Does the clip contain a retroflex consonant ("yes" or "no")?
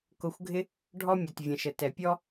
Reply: yes